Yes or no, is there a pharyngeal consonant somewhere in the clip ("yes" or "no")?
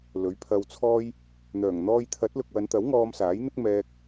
no